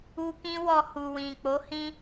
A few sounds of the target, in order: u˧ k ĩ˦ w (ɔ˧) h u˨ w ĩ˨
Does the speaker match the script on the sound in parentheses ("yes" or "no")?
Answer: yes